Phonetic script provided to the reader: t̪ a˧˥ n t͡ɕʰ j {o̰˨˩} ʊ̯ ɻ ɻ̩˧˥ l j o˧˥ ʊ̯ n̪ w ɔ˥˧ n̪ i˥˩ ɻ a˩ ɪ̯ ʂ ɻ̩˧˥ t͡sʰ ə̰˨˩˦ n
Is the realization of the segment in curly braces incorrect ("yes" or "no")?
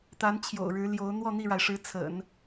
no